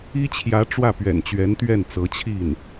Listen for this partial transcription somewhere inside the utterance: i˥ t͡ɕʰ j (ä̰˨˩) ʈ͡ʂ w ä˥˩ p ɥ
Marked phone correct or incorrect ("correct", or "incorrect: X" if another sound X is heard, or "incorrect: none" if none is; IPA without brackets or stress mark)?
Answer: incorrect: ä˧˥